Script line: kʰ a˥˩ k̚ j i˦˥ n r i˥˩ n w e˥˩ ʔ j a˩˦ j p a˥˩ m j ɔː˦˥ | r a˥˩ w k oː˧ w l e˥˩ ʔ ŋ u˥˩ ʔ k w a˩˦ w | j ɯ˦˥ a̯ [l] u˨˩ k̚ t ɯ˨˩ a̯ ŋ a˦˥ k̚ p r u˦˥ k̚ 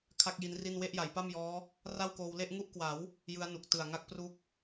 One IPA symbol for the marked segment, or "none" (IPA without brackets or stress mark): n